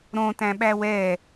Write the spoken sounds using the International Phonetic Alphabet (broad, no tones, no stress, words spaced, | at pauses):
ɾõtæ̃ɓæ wɛ